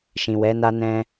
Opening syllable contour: low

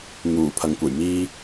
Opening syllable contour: low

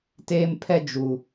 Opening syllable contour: high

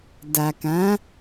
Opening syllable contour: low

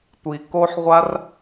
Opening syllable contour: low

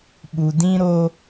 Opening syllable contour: low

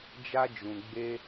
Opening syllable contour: high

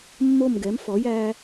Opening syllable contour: falling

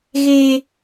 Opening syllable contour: high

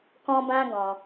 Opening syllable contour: high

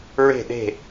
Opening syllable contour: falling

